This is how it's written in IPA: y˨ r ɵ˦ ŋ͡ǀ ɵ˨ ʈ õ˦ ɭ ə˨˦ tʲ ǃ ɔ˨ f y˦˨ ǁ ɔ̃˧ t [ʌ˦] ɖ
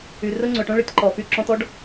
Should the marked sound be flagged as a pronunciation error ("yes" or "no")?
yes